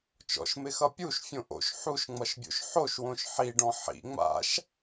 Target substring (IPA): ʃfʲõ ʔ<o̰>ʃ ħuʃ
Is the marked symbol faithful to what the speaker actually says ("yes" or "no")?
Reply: yes